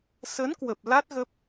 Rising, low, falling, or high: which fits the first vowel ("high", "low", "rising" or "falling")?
rising